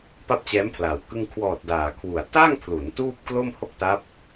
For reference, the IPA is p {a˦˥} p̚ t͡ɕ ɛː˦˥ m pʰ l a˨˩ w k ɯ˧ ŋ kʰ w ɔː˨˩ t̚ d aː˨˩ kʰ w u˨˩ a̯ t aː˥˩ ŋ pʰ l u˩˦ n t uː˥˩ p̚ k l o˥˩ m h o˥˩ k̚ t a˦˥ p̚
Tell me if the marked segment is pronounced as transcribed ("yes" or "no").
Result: no